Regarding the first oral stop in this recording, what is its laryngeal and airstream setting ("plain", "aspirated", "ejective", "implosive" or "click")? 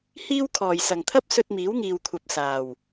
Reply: aspirated